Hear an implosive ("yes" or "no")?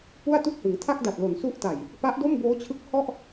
no